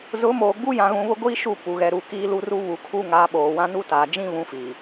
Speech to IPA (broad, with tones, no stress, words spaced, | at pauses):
zʊ˨˦moː˨ ɡ͡bu˦jã˨ ɣũ˨βʊ˦ɡʷiː˦ ʃu˦˨pu˨ ɣɛ˨ɾu˨ kiː˦lu˦ru˦ βu˨kʰu˦ ŋaː˨˦ɓoː˨wã˦ nu˦taː˨ d͡ʒĩ˦βũ˨˦ fiː˨